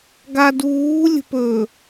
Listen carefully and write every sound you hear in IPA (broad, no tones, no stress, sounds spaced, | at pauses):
ɡ a d uː lʲ ə̤ p ɵ